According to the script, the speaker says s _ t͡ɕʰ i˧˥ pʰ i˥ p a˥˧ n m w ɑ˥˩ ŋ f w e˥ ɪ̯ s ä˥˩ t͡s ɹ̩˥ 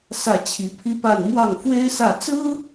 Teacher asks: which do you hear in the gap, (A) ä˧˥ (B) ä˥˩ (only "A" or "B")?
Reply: B